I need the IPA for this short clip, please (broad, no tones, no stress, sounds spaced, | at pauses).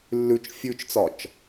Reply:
lː ʉ t͡ʃ fʲ ʉ t͡ʃ t͡s ɒ t͡ʃ